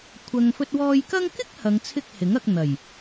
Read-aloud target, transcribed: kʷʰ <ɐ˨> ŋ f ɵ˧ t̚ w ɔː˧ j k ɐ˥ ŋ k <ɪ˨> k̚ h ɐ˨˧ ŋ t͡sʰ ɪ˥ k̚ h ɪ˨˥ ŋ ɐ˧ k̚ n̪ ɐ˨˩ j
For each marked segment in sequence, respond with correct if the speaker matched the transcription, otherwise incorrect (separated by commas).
correct, incorrect